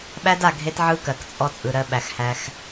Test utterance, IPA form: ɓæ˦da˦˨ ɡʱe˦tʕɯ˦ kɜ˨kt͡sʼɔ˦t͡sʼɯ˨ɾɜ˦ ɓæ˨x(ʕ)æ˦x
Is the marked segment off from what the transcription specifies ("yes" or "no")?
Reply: yes